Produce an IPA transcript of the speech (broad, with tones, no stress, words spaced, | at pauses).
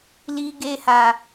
li˧ɡe˧ha˨